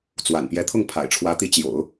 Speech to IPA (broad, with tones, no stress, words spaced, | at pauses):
t͡swa̰˨˩npjɛ˧˥ t̪ʰʊ˥˩ŋ pʰa̰˨˩ɪ̯ʈ͡ʂʰwä˧˥t̪i˧˥ t͡ɕjo̰˨˩˦ʊ̯